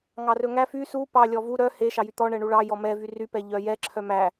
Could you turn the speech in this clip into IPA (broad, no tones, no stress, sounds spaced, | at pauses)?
ŋ ɑ r ɵ ŋ æ f y s u p ɑ lʲ ɔ v u ɾ œ h e ʃ ɑ j y t̪ ɔ ɳ ɛ ɳ u ɭ ɑ j ɔ m ɛ v y r y p ɛ ʎ œ j ɛ ǁʰ œ m æ